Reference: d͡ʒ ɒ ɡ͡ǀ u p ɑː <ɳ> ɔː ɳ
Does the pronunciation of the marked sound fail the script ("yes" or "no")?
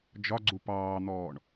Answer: yes